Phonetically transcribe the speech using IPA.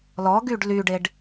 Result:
l ɔ ɡ y ɖ l y ɖ e ɖ

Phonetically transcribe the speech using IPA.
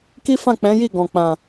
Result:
k i˦ f ã˦˨ k͡p ɛ̃˨˦ j i˦˨ ɡ ɔ̃˨ k͡p ã˨

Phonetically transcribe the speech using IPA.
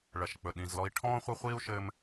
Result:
ɭ ɐ˩ ʃ k͡p ɵ˩ ɗ ĩ˩ z l ɔ˧ i̯ ʈʰ ɔ̃ː˥ χʷ ɐ˥ χʷ iː˥ u̯ ʃ ɘː˥ m

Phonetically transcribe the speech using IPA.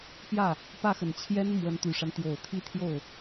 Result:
p j ä˥˩ | p ä˥˩ x ə˨˩ n t͡ɕʰ j ɛ˥ n m w ə˧˥ n t̪ y˨˩ ʂ a˦ n t̪ j o˨˩ ʊ̯ t̪ʰ i˥˧ t̪ʰ j o˥˩ ʊ̯

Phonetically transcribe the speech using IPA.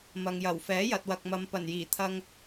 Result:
m ɐ˨ ŋ j ɐ˨˩ w f ɛː˨˥ j ɐ˨ t̚ w ɐ˨ k̚ m ɐ˨ m p ɐ˨˩ n j iː˨˩ t̪ʰ ɐ˧ ŋ

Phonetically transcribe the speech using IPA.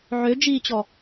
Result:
ʕ ø d͡ʒ iː t͡ɕ ɔ

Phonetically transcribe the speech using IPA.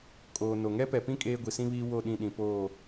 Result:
kʼ oː˨ n o˨ ŋ ɛ˦ p ɛ˨ p ĩ˦ kʼ eː˦ ɡʷ i˨ s ĩ˦ β iː˦ w o˦˨ ɗ ĩ˦˨ ɗ ĩ˨ p oː˦˨

